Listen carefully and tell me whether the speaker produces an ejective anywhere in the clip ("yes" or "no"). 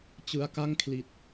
no